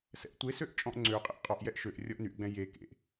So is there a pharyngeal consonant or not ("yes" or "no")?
no